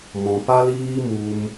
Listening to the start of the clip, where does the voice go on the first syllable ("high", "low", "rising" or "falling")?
low